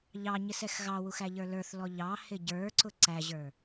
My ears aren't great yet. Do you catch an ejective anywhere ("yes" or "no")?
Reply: no